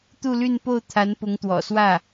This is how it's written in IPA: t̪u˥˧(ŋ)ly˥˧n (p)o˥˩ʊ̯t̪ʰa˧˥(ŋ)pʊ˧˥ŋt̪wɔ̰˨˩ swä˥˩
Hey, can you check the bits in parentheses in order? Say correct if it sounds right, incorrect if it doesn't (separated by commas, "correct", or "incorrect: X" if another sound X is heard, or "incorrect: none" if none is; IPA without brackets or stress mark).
incorrect: none, correct, incorrect: n